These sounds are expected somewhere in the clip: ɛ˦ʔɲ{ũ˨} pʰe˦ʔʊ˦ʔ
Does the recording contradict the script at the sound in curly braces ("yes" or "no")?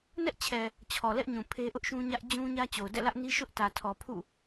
no